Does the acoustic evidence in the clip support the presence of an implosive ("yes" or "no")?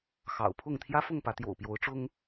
no